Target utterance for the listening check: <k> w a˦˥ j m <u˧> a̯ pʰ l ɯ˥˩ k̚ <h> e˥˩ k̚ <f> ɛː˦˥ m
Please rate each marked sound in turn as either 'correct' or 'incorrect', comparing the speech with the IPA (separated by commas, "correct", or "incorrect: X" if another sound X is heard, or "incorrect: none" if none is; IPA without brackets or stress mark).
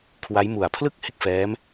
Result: incorrect: kʰ, incorrect: u˨˩, correct, correct